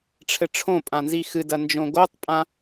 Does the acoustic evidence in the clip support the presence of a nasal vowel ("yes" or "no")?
yes